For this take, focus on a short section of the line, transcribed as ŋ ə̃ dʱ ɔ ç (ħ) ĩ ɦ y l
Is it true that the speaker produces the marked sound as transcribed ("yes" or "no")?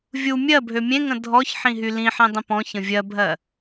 yes